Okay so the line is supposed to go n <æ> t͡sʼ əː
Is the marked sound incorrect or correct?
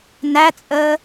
correct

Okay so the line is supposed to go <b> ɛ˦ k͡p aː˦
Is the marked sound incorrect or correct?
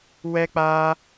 incorrect: w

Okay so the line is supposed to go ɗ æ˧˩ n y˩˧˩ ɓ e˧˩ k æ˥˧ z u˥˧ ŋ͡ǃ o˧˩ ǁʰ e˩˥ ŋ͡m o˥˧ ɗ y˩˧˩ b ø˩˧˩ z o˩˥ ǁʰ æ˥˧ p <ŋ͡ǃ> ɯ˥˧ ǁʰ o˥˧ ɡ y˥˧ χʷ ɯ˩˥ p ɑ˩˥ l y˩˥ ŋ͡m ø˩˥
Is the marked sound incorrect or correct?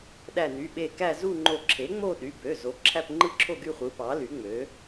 correct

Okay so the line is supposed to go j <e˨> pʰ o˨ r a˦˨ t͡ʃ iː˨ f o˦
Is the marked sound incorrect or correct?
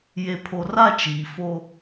correct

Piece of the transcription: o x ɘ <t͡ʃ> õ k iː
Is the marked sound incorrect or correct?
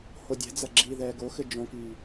incorrect: d͡ʒ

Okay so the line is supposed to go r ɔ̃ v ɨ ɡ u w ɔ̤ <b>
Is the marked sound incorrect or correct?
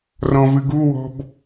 correct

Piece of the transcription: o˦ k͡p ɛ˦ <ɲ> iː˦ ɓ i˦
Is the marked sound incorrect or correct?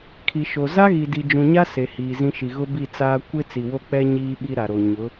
correct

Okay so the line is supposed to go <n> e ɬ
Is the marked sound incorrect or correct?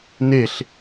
correct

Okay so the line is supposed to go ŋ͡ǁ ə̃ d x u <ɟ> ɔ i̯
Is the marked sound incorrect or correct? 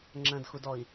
incorrect: d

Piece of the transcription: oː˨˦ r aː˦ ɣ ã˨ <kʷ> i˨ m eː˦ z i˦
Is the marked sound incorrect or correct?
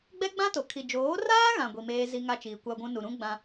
incorrect: ɡʷ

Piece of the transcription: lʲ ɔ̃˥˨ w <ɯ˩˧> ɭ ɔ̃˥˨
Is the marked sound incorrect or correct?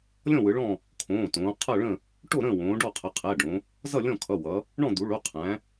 correct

